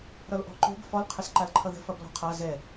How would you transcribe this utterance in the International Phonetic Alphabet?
ɾʌlʔɔ̤ǃo̤b fɔl qʰɘsǃalǃʰʌðə̤ fʌblɔ̤qʰa zɛ

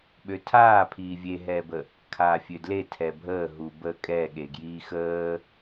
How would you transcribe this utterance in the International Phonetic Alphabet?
ɓøtʰaː pʰiːvʲeɦɛːbə | kʰaːfʲødle tʰɛbʱəː ɦubə kʼɛɠe ɡjiːxəː

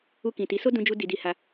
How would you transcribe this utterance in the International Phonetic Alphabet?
u˧kĩ˨ ti˨˦so˦ dũ˦d͡ʒu˦ di˧di˧ha˧

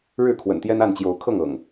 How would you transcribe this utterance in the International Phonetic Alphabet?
ɻɻ̩˥˨kʰwə̰˨˩nt̪jɛ˦n a˥˨nt͡ɕjo˨˦ʊ̯kʰɤ˥˨ŋ ɤ̰˨˩ŋ

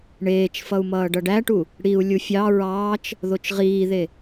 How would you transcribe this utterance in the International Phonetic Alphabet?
ɳeːt͡ʃfʌu̯mʌː ɖʌɖæʈu | ɽiu̯ lʲufʲɑ ɹɑːt͡ʃ | ðot͡ʃʁiːðe

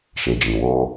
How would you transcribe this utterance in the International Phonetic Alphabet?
ʃe˨d͡ʒĩ˨ wo˧

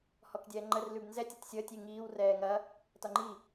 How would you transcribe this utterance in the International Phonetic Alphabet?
hɔkdʲɛːŋ͡ǃər lʉbnzɛtʲ ɐtʲsʲəːtʲ iŋiːw rɛːŋɐ | tɒŋ͡ǃi

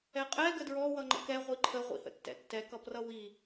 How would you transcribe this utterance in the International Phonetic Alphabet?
ɛqʼɛ ɡədɹɔ wʌŋ͡ǃə̰kɛ ʁʷiǃʰə ʁʷḭhə̰tːɛ̰tːɛ kʌprʌwi

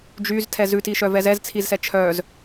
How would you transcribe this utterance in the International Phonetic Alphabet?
d͡ʒyztʰɛ zʉtiʃœvɛz ɛzt͡sʰizsɛ t͡ʃʰœz

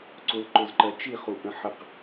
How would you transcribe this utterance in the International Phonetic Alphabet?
ǀʊlǃʊzǃɜ t͡ʃiχuʔə̃ ħəq

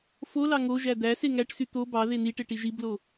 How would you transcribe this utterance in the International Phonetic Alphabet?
folɑ ŋoʒæ d̪æse ŋæʈsy t̪o bɑ ðeniʈe ʈiʒiblo

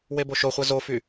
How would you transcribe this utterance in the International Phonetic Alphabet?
weboʃoχʷɛ zofy

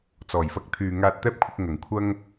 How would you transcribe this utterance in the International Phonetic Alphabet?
t͡sɔː˨˩jfɐ˧k̚t̪ʰyː˨ ŋaː˧t̚t̪ɛː˥p̚kʷʰɪ˧k̚ ŋɐ˨˩ŋ kʷʰɐ˥ŋ

